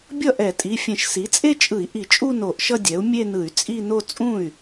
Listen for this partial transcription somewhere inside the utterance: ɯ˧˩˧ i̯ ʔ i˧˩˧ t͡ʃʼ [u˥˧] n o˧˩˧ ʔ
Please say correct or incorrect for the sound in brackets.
correct